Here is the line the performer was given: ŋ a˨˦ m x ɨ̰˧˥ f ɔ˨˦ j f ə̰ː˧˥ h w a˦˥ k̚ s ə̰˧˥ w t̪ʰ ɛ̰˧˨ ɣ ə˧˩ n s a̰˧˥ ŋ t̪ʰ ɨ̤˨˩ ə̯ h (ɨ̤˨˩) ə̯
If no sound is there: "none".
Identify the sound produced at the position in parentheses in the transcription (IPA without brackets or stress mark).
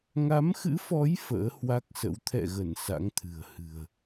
ɨ̤˨˩